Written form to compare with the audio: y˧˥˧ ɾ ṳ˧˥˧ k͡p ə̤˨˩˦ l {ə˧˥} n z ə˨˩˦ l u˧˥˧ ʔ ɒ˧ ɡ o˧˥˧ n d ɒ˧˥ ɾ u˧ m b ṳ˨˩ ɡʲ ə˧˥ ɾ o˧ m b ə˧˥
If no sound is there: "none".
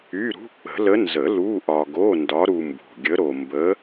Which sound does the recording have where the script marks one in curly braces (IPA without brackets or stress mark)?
ə˧˥